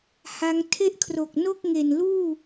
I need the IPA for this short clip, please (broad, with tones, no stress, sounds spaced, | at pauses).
h a˦˥ ŋ tʰ e˥˩ ʔ kʰ r o˨˩ k̚ n o˥˩ k̚ ŋ e˨˩ n l uː˥˩